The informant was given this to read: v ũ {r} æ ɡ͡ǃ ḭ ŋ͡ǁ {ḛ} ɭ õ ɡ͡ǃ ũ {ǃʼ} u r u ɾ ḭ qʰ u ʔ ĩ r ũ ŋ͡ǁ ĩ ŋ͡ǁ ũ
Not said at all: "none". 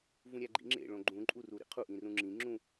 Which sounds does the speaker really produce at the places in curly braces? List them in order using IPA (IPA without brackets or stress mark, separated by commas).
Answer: ɾʲ, ḛ, ǃʼ